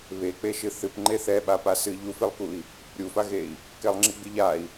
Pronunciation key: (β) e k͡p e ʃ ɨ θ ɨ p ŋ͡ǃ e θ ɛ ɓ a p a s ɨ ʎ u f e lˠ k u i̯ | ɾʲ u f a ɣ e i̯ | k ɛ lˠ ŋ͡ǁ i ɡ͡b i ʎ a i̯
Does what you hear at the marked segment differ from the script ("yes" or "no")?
no